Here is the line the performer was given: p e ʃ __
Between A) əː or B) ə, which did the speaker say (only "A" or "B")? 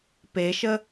B